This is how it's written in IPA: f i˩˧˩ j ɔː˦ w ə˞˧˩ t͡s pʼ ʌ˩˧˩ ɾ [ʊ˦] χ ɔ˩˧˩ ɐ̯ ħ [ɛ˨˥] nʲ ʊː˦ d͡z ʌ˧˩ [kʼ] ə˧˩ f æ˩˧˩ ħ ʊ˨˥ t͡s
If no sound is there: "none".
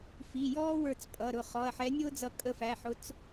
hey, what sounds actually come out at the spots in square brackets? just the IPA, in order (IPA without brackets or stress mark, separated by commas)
ʊ˧˩, ɛ˨˥, kʼ